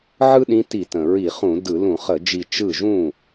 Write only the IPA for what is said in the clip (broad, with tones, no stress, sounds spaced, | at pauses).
ʕ ɯ˥ ɗ ĩ˧˥ t i˧˩˧ t ə̃˩ ɹ i˧˩˧ χ ũ˧˩˧ d ɯ˧˩˧ l ũ˧˩˧ χ ə˧˩˧ d͡ʒ i˧˩ t͡ʃ ɯ˥˩ ʒ ũ˥˩